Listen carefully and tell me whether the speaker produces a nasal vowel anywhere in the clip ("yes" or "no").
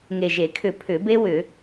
no